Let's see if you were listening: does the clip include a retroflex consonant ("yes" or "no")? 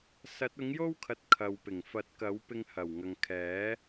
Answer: no